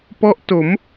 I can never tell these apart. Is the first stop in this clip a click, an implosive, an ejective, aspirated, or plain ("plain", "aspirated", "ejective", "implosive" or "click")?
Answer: plain